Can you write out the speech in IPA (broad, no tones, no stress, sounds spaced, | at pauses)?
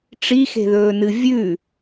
ʈ͡ʂ i x e̤ ð ɵː n ɨ vʲ ʉ